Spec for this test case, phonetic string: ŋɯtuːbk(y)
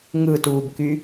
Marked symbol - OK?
yes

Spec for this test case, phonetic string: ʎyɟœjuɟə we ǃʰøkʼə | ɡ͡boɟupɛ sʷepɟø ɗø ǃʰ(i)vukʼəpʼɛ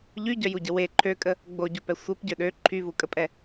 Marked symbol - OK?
no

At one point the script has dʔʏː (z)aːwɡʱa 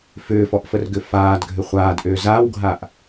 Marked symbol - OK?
yes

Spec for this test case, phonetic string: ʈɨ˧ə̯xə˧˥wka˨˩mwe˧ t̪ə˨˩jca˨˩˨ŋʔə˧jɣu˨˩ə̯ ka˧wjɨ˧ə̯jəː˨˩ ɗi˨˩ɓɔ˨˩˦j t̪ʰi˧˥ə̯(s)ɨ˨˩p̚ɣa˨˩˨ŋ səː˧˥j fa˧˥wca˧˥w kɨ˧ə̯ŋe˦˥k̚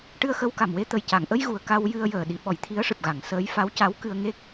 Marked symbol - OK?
no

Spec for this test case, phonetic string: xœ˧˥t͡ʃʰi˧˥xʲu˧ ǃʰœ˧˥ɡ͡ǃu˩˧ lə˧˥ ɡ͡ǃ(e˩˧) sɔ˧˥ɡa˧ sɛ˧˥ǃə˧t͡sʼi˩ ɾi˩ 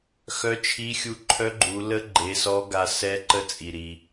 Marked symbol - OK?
yes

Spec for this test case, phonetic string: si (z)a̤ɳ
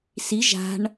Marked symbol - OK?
no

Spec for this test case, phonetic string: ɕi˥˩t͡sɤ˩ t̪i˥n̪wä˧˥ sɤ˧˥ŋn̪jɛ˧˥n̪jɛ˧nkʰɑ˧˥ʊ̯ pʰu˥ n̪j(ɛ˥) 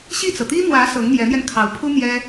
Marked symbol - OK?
yes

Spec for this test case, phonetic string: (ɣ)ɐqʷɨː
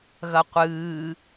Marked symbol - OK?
yes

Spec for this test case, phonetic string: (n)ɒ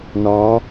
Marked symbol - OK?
yes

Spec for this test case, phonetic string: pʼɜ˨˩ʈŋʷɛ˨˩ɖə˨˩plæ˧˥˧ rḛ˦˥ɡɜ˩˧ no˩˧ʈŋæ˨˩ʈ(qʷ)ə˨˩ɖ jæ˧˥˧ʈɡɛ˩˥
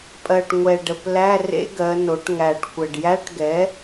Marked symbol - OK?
no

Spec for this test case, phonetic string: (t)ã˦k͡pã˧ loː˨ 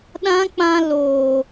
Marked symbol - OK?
no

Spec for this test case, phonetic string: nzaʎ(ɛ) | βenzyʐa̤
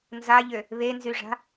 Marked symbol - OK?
no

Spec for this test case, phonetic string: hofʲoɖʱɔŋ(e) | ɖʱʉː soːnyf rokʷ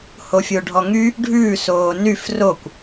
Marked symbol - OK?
no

